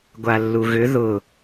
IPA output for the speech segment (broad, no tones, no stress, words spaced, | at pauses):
ɡʷalːuɣʏ ðʊ